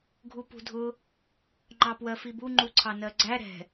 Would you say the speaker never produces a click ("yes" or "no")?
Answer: no